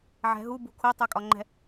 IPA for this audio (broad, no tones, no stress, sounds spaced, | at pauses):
ʕ ɛ̤ ɦ u b ṳ kʰ u tˤ u kʼ ɒ ŋ͡ǃ ɛ̤